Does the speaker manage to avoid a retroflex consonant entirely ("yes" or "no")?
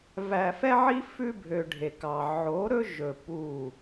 no